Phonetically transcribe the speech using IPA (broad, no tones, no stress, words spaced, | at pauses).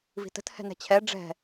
vi̤tə̤t hɛ̤nɛ̤t͡ɕʰɛ ɖ͡ʐɛ̤